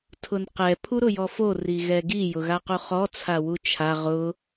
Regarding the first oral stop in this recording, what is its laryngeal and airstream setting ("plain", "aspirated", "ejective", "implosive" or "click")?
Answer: aspirated